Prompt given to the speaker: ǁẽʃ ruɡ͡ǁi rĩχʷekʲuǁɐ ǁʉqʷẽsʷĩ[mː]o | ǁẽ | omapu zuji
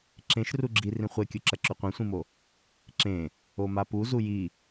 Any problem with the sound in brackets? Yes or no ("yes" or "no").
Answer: yes